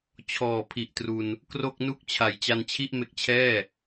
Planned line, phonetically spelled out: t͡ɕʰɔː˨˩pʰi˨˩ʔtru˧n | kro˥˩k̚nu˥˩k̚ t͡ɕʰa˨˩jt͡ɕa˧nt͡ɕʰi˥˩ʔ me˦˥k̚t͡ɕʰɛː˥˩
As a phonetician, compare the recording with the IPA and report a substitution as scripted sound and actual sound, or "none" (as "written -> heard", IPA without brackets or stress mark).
none